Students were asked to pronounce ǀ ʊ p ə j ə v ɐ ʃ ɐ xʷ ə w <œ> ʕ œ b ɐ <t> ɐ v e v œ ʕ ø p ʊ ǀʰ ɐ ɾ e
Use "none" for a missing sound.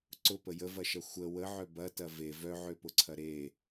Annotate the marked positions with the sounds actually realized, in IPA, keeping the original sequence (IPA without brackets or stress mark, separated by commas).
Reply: ə, t